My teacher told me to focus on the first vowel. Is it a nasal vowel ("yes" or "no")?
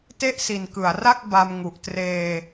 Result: no